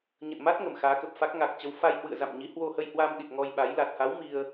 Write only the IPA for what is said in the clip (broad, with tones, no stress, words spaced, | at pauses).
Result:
ɲə̰˧˨nma˦˥t̚ ŋə˧˩mxaː˨˦kə˨˩p̚fa˦˥k̚ ŋa˨˩k̚t͡ɕə˨˦w fa˧jhwɨ̰˧˨ə̯za̰˧˨mɲi˨˦ hwo˧hə˧jhwa˧mɗi˨˩t̚ ŋɔ˧jɓa˨˦j la˨˩t̚ha˨˦w mi˧ə̯